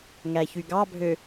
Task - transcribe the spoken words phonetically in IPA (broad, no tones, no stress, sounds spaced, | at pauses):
ŋ æ ç y ɡ ɑ bʱ ø